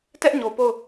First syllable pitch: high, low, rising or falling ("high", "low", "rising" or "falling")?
high